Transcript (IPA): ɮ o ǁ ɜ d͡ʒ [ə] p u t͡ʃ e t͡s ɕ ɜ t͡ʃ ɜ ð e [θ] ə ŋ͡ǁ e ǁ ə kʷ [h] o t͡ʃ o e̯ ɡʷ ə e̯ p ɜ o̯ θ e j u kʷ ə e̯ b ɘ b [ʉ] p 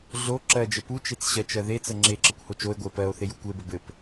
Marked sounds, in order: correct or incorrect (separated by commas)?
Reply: correct, incorrect, correct, incorrect